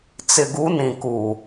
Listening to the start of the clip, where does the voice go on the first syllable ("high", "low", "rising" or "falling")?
low